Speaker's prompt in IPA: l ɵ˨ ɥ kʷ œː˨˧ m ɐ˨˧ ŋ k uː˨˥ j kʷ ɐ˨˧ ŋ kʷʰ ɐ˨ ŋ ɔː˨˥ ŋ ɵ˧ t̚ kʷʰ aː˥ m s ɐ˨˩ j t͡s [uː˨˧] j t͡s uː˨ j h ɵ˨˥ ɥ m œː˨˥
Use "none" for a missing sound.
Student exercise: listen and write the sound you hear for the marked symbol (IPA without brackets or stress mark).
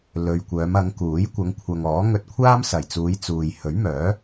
uː˨˧